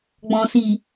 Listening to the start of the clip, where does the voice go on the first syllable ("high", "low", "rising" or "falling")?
low